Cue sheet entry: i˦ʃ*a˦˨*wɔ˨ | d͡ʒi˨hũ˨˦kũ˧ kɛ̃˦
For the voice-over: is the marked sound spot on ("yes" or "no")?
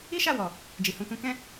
yes